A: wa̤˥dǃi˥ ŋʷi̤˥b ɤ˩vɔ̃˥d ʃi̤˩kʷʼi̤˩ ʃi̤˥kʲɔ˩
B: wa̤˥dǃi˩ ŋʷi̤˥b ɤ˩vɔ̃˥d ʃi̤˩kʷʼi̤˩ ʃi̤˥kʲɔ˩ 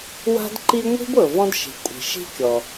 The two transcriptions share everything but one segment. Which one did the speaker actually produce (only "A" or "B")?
A